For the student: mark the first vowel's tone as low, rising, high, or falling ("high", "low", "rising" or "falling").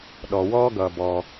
low